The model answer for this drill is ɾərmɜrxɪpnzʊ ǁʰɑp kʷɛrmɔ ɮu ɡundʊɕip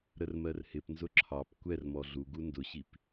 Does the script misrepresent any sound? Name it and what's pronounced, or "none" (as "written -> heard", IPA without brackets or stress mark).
x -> h